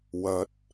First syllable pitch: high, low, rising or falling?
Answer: rising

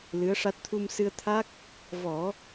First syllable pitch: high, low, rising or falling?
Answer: rising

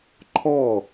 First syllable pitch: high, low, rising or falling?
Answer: falling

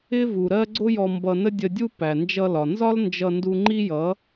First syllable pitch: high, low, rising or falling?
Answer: high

